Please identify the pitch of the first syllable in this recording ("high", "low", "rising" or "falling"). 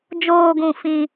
low